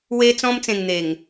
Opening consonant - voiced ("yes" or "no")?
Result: yes